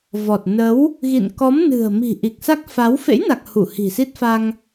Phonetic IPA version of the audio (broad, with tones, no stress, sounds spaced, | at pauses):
v ɔ˨˩ t̚ n ə˨˦ w | ɣ ḭ˧˨ n k ɔ˨˦ m n ɨ̤˨˩ ə̯ m i̤˨˩ ʔ i˨˩ k̚ s a˦˥ k̚ f a˨˦ w f ḛ˧˥ j n a˨˩ k̚ h u˧˩ h i̤˨˩ s i˦˥ t̚ f a˧ ŋ